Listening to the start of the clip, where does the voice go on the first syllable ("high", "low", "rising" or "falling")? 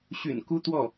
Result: low